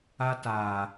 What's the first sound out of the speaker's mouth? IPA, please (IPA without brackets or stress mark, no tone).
a